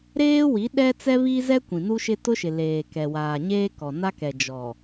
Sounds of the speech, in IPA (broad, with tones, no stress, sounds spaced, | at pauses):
ɾ eː˦ w i˨˦ ɗ ɛ˦ t͡s ɛ˦ β i˦ z ɛ˦ kʷ ĩ˨ n u˦ ʃ ɪ˦ t ʊ˦ ʃ ɪ˨ l eː˨ k ɛ˨ w aː˨ ɲ eː˦ k ɔ˨ n a˦ k ɛ˨ d͡ʒ ɔ˨